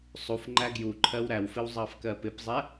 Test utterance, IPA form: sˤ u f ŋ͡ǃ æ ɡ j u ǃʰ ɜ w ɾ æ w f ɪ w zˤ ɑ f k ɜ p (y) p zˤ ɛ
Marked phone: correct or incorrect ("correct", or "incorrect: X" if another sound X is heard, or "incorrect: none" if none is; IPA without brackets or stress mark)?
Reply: incorrect: ɪ